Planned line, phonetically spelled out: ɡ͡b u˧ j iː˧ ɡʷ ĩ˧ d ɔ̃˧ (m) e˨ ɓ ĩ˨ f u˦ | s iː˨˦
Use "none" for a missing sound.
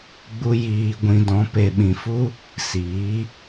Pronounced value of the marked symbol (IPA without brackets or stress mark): p